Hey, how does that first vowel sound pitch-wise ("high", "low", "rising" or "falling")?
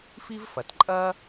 high